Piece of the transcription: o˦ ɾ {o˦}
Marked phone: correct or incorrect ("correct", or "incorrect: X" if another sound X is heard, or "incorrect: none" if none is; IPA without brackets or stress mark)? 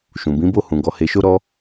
incorrect: ɔ˦